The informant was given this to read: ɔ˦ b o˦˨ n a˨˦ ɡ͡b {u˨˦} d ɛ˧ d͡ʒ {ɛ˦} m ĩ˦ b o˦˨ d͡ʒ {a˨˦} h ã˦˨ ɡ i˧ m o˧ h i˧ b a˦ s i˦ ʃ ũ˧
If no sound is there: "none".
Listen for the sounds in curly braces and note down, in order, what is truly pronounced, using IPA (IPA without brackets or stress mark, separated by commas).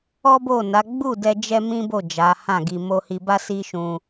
u˦˨, ɛ˦, a˨˦